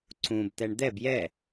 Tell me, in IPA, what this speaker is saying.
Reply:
ǀ ũ b t̪ ɛ ɳ d̪ ɛ b j ɛ

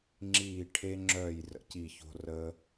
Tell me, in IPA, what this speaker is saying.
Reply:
ŋ͡ǁ iː˦˨ ʈʰ e˦ ŋ͡ǁ œː˦˨ j r ə̰˦˨ c i˦˨ ç o̤˦ r əː˦

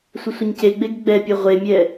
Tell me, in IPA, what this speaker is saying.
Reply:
sʷ ə sʷ ə ɲ c e ɡ͡b e ɡ ɡ͡b ɛ pʲ ɛ ʁʷ e mʲ ɛ

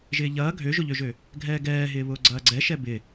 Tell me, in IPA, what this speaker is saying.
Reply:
ʒ ɪː ʎ ɐː ɡʱ ø ʒ ʊ ʎ ø ʒ ø | ɡʱ ɛː ɡ ɛː ɦ ɪː β ʊː ɡ͡ǀ ɐː ɡ͡ǀ ɛ ʃ ɛ b ɪ

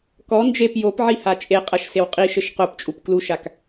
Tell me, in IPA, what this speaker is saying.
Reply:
k ɔ n d͡ʒ e p j o p ʕ i h a t͡ʃʼ e qʼ ɐ ʃ s e w qʼ i ʃ ɘ ʃ q o p t͡ʃʼ u p k l u ʃ a k

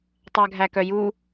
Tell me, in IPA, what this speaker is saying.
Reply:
tˤ æ ɡʱ æ k œ j u

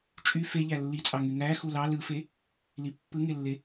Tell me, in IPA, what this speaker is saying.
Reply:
t͡ʃʼ y f e ʎ æ lː i t͡sʼ ɑ ŋ y ŋ æ x u l ɑ l ɯ f e | l i pː ɯ ŋ e lː e

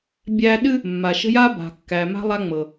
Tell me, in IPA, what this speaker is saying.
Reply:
bʲ æ˦ ɗ ɨ˦ | mː a˨ ʃ ə̤˦ j a˦ b a̤˨ kː æ˨ m a̤˦ lˠ a˦ ŋ͡m ɤ˨

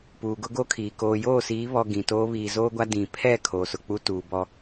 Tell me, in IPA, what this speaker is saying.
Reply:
p uː˨ ɡ ʊ˦ ɡ o˦ kʰ iː˨ k oː˨ j oː˦˨ s iː˨˦ β ɔ˨ ɡ ĩ˨ t oː˦ β iː˨ z oː˦ ɡʷ a˦ d ĩ˨ pʰ ɛ˦˨ kʰ oː˨ s ʊ˨ k͡p u˦ t uː˨ b ɔ˦

